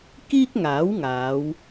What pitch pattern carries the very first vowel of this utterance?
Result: high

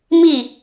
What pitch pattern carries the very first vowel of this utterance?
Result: falling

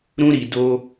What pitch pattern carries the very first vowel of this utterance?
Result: high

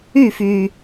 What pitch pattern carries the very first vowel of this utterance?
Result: falling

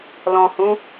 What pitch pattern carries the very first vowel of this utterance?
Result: low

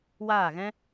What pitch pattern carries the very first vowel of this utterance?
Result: falling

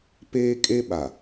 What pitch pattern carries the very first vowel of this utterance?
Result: high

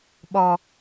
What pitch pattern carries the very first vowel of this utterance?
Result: low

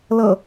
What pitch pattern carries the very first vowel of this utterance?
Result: low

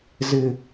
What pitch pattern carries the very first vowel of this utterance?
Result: low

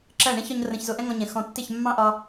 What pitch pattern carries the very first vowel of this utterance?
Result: falling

